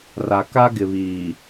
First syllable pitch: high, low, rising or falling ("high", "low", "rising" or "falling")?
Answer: low